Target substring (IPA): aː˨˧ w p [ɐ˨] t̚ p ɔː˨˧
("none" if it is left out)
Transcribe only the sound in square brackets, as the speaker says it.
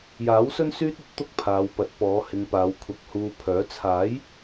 ɐ˨˥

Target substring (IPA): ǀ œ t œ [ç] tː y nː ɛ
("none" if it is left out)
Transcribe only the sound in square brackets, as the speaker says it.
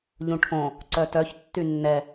ç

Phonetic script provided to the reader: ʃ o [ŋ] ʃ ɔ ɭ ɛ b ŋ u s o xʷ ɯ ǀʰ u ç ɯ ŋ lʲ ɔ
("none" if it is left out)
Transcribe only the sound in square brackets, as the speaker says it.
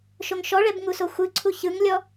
ŋ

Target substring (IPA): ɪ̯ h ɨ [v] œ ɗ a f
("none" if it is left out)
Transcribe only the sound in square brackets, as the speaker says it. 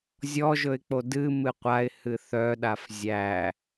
θ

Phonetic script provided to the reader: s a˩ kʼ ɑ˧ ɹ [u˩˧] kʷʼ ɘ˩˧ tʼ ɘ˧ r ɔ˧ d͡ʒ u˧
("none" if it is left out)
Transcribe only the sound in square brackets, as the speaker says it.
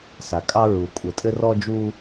u˩˧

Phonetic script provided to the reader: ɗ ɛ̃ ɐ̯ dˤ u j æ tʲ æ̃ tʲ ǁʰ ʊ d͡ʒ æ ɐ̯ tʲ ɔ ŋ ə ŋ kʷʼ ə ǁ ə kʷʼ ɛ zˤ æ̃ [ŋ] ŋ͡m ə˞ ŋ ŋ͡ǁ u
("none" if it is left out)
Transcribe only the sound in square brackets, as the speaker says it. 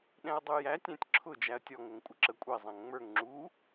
ŋ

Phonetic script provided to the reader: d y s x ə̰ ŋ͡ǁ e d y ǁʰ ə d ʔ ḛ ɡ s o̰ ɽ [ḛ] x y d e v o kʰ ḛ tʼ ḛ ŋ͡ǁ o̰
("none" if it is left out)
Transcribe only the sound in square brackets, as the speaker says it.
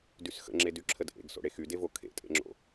e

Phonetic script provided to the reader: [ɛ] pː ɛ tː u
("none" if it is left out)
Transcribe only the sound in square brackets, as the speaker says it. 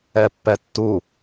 ɛ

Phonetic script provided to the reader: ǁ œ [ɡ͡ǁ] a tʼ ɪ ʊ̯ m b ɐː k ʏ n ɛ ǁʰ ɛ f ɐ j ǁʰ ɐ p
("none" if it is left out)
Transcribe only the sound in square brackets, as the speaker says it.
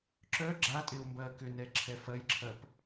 ɡ͡ǁ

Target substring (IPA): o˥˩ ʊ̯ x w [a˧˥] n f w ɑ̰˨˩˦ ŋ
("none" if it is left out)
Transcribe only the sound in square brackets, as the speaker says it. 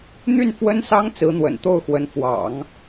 ə˧˥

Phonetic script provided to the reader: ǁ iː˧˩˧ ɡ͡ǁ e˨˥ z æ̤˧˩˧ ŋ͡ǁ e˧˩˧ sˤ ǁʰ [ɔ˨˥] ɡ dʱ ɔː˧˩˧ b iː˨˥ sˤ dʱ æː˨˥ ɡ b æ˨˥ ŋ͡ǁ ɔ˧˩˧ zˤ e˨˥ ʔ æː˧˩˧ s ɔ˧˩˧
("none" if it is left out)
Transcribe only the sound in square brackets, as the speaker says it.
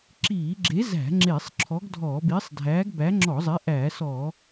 ɔ˨˥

